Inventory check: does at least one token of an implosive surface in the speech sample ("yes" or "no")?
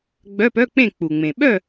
yes